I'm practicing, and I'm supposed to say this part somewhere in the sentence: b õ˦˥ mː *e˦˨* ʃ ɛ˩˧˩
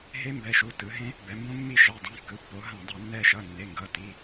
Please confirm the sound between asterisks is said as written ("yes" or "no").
no